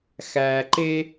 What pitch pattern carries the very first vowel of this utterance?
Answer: low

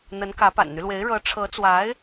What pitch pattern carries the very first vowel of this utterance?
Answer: rising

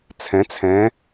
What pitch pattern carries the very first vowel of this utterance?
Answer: rising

